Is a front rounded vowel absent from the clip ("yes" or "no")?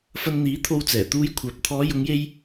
no